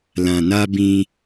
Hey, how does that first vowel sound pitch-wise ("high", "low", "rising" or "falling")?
low